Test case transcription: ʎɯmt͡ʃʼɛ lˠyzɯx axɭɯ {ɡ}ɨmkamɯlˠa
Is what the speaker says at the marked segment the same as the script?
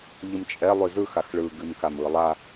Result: yes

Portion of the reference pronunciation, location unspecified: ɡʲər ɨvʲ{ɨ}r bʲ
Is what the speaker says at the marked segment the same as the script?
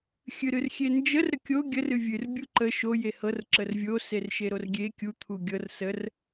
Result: yes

